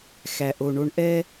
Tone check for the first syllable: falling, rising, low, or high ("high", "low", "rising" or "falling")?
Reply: low